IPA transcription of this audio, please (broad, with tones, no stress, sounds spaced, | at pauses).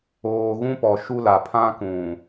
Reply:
oː˨ ɣ ũ˦ p ɔ˨ ʃ u˦ l a˨ pʰ ã˦ k ũ˨